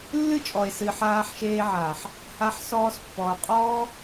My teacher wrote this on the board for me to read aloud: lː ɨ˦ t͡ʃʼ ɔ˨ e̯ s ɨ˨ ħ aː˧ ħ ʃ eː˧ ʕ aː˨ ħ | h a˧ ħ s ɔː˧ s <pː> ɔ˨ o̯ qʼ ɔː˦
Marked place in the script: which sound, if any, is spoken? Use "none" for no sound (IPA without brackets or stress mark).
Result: pː